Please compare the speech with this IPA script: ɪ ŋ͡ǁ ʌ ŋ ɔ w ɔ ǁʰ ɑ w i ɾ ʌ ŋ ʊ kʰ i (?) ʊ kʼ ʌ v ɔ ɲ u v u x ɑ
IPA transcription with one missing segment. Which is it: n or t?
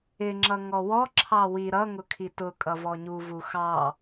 t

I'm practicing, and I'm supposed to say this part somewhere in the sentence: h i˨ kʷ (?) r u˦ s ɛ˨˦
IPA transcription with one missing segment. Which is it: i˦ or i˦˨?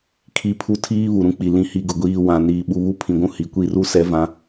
i˦˨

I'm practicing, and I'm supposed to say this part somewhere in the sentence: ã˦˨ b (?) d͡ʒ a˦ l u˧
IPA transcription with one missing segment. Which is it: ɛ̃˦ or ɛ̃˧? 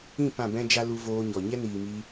ɛ̃˦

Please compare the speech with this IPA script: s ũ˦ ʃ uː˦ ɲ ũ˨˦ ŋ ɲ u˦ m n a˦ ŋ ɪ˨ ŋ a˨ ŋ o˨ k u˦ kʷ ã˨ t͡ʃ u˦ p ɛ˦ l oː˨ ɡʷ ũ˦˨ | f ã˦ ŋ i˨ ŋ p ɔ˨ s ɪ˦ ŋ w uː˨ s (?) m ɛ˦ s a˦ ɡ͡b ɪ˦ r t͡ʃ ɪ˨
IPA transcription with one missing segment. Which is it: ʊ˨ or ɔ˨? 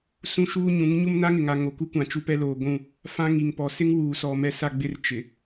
ɔ˨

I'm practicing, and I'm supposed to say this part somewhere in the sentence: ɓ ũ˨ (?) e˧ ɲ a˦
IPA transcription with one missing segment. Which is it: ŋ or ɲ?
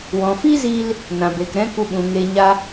ŋ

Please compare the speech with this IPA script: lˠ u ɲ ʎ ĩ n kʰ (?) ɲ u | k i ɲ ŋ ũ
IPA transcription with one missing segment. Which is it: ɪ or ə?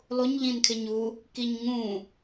ɪ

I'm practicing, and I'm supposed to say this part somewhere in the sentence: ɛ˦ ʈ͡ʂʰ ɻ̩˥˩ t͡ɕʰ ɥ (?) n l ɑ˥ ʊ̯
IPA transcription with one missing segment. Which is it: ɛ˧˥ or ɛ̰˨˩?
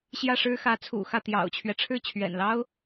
ɛ̰˨˩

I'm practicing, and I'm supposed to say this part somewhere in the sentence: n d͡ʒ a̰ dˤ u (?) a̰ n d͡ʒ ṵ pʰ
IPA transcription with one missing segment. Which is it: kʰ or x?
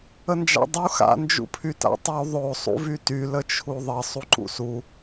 x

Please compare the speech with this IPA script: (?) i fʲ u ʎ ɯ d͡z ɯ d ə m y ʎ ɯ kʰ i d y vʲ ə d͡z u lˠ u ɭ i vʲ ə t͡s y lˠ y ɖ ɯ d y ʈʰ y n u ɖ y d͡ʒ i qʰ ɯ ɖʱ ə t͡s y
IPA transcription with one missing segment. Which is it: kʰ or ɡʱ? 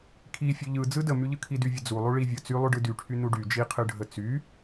kʰ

